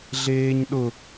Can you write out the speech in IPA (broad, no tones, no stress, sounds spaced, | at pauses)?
ɮ eː ɲ ɗ ʊ